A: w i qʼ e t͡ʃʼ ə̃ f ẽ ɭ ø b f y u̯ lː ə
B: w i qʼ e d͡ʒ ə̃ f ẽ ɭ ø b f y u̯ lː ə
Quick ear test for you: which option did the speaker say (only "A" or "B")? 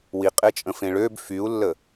A